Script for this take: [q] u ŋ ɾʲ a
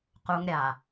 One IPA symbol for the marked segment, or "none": q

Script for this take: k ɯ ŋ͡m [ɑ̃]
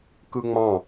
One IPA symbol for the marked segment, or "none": ɑ̃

